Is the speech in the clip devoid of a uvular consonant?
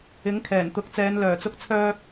yes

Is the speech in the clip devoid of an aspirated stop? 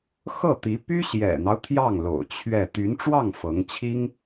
no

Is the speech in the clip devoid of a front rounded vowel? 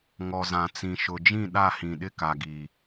yes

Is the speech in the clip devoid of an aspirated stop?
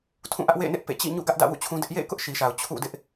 no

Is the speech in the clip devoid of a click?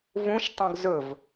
yes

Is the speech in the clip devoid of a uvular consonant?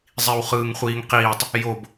no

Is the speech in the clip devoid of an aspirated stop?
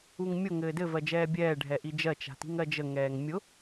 yes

